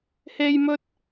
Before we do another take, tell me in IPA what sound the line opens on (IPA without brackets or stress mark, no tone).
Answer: h